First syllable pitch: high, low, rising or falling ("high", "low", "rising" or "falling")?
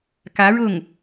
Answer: rising